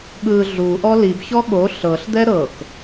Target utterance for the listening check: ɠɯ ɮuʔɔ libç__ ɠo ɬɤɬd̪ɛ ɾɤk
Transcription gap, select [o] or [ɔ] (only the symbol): ɔ